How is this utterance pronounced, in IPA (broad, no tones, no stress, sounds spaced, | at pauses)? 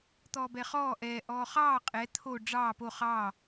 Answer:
t̪ ɔː b ɛ χ ɔː ʔ ɛː ʔ ɔː χ ɑː qʼ ɛ t̪ʰ o ɖ͡ʐ ɑː p o χ ɑː